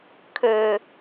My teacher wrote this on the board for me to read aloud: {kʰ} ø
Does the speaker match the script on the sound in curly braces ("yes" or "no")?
yes